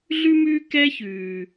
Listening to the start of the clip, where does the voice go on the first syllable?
high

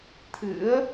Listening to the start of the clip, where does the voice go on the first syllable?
rising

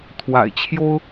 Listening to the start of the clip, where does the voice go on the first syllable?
low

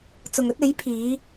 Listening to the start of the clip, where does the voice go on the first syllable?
low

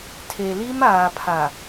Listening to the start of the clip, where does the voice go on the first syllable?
low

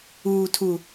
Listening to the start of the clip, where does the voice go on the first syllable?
low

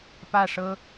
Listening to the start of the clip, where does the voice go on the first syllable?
falling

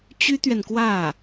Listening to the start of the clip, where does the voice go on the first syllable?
high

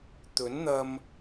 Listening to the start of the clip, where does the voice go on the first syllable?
rising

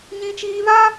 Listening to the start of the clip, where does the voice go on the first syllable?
high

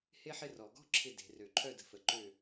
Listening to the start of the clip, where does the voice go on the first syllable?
high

